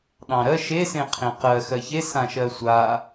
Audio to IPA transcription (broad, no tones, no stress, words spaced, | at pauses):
ɗɑ̃ɾɜ ʃesẽ qʰẽqɜ xɜçe sãʃɜsʷa